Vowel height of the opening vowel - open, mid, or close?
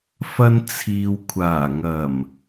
open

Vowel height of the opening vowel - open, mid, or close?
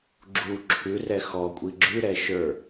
close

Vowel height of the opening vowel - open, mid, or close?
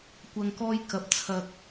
open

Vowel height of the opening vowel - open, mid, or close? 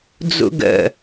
close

